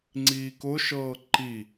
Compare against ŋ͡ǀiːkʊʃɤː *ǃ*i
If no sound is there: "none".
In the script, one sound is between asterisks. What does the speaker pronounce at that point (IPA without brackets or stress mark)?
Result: ǃ